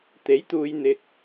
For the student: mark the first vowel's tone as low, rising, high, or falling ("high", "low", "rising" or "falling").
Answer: rising